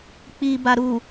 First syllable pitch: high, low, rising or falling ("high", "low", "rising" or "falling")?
low